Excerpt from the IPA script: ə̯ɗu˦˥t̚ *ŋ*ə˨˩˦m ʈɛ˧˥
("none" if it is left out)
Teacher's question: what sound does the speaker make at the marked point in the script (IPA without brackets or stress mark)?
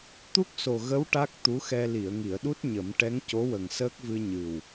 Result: ɲ